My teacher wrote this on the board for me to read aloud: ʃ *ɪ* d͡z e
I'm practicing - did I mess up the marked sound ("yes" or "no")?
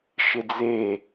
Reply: no